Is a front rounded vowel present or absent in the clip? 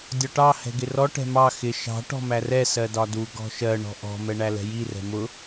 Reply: absent